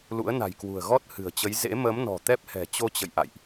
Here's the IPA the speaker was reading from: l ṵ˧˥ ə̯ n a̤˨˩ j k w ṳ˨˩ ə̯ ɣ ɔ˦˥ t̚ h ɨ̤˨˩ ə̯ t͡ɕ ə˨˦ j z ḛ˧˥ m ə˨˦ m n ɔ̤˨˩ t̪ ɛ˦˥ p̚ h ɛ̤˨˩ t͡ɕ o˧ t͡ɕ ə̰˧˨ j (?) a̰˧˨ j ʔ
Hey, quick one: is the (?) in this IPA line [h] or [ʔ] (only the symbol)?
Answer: ʔ